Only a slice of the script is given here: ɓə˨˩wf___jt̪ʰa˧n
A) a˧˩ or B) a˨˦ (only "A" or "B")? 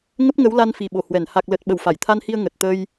A